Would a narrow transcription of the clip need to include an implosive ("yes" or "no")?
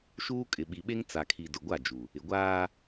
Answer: yes